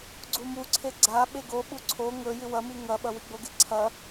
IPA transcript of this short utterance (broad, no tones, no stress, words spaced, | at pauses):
ɡ͡ǀumuǀʰe ɡ͡ǀa ɓeɡoɓu ǀʰo ŋɵ jɨwɐmi ŋɐɓɐ wiɡ͡boɡe ǀʰɐ